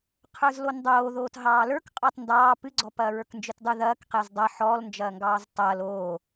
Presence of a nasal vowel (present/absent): absent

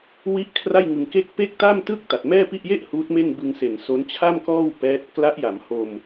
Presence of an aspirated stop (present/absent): present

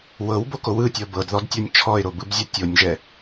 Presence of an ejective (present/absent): absent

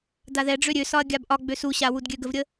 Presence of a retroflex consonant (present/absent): present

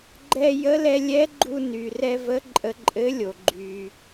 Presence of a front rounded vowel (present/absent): present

